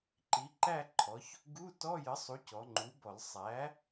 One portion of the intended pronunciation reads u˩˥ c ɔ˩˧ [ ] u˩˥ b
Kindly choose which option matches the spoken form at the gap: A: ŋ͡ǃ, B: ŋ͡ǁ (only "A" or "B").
A